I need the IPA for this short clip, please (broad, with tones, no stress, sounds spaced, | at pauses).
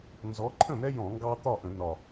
n z ɔ˨˦ ǃʰ ə̃˥˩ n̪ ɛ˦ j ɔ̃˧˩˧ ŋ ɡ ɑ˦ t̪ ɒ˥˩ ʔ ə̃˧˩˧ n ɒ˨˩